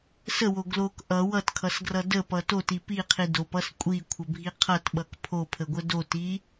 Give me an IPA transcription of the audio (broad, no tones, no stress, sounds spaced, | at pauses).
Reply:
s ə w o ɡ l o k ʔ ʌ w ʌ t kʰ ʌ s ɡ r ʌ d ə p ʌ t o t i p i qʰ i d o p ʌ s kʷʼ i kʷʰ ə bʱ i qʰ ʌ t ɓ ʌ k pʰ o pʰ ə ɡʷ ə d o t i